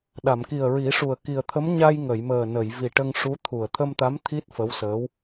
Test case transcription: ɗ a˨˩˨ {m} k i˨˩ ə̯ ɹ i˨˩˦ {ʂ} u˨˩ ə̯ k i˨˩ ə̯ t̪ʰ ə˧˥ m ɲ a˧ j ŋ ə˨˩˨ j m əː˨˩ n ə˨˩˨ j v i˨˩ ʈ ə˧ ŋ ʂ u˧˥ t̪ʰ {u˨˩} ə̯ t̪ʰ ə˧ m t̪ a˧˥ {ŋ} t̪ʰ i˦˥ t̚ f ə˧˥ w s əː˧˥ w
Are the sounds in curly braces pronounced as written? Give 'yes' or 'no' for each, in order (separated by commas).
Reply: yes, yes, yes, no